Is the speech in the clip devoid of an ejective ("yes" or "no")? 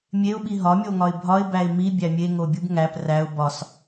yes